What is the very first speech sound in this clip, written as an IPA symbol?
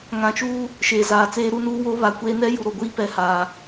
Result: ŋ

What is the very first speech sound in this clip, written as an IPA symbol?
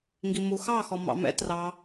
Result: ŋ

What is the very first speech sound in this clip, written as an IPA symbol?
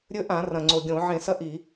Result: ɾʲ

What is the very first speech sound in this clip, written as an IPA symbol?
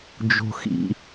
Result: d͡ʒ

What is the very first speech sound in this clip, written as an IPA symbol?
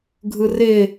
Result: ɡʱ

